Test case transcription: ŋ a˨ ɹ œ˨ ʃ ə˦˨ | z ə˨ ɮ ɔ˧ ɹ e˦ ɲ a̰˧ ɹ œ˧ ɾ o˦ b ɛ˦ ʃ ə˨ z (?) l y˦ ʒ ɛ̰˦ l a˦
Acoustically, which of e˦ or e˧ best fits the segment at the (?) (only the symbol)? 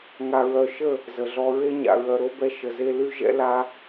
e˧